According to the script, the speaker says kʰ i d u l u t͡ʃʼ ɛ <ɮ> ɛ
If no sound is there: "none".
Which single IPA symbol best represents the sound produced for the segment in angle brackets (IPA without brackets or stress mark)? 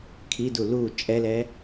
l